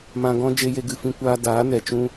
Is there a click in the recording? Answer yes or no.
no